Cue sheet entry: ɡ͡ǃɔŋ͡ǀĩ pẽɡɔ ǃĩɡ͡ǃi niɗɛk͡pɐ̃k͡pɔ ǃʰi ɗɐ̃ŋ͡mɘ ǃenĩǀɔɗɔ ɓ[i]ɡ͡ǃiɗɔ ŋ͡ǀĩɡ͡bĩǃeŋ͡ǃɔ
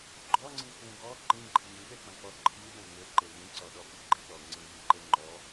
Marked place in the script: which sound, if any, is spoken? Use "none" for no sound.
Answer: i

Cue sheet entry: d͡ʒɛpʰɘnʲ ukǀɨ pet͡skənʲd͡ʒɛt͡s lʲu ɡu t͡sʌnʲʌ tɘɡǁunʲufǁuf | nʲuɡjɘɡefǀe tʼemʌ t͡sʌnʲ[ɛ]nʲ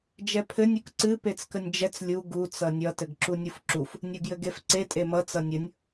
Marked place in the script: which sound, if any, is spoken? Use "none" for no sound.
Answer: ə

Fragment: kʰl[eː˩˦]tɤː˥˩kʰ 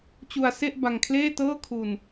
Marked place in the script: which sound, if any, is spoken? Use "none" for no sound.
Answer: eː˥˩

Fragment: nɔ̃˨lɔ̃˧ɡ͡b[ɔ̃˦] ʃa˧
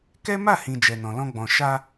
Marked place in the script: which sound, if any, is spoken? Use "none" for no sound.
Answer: ɔ̃˨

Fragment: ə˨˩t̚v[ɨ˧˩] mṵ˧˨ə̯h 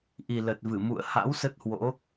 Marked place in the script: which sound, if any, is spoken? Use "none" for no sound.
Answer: ɨ˧˩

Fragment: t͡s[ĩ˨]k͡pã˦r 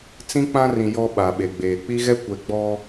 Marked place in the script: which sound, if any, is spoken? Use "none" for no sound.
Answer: ĩ˦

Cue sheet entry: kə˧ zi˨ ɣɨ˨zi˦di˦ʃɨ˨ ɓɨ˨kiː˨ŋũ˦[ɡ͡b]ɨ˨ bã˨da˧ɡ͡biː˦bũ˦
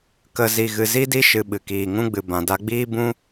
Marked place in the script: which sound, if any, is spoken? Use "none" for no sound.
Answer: ɡ͡b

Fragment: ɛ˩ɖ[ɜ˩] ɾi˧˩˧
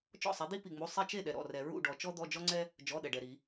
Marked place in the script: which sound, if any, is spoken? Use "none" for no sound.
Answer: ɛ˩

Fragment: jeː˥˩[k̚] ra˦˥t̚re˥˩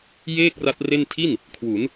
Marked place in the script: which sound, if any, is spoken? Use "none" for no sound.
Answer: k̚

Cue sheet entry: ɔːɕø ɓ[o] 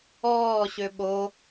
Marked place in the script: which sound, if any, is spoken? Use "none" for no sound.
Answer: o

